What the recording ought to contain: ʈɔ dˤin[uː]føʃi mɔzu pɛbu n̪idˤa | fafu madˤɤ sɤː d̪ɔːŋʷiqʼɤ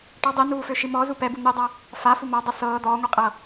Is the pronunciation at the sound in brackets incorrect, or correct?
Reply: correct